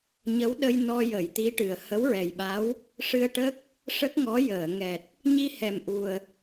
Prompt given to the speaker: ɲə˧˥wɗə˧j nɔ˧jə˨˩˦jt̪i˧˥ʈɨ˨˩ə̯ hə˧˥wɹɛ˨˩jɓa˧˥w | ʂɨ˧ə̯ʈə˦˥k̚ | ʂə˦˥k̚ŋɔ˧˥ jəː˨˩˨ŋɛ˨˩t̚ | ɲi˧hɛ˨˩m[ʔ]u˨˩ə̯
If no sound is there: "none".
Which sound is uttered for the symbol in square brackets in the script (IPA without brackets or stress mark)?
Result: ʔ